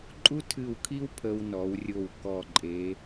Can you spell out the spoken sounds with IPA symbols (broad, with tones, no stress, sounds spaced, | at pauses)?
ǃʼ u˥ tʰ ɨ˧˩ w kʰ i˥ w pʰ ə˧ w n ɔ˩˧ w rʲ o˧˩ w k ɔ˧˩ ǃʼ e˩˧